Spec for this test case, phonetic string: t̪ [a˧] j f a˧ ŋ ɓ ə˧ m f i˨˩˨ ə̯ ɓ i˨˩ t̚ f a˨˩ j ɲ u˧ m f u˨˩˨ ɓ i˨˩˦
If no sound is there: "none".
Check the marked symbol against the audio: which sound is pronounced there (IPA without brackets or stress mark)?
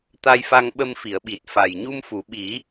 a˧